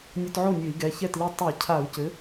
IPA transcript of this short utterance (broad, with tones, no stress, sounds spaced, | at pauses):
nʲ ɔ˧ t ʕ o˥˩ nʲ ɘ˧˩˧ i̯ ɡ ɛ˩˧˩ ç ɛ˥˩ t l i˧ tˤ i˧˩˧ cʰ a˧˩˧ u̯ c ɘ˩˥